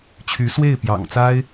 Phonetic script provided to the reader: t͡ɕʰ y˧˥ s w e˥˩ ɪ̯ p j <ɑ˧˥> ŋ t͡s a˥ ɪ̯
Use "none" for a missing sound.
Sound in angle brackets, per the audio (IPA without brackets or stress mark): ɑ̰˨˩